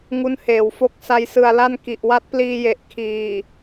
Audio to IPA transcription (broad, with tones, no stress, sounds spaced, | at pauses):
ŋ u˦˥ n h eː˨˩ w f o˦˥ k̚ s a˦˥ j s ɯ˧ a̯ l a˥˩ n k i˨˩ ʔ w a˦˥ t̚ p l iː˧ j e˨˩ ʔ kʰ iː˨˩